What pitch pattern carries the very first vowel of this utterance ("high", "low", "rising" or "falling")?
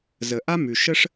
low